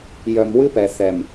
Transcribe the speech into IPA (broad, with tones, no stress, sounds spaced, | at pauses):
j œ˨ m w ɨ˦ p ɛ˨ θ ɛ˨ m